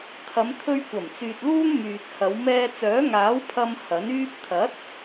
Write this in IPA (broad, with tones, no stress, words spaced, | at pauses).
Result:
t̪ʰɐ˨˧mt̪ʰɵ˧ɥkʷɐ˨˩mt͡syː˨t̚ luː˥ŋmyː˨t̚hɐ˨˧w mɛː˧t͡sœː˨˥ŋaː˨˥w pʰɐ˧m hɐ˨˥nyː˥p̚ t̪ʰɐ˨˥t̚